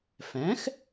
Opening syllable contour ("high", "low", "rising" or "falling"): rising